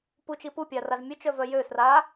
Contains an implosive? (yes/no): no